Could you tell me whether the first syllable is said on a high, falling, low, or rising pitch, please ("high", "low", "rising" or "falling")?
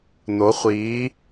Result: rising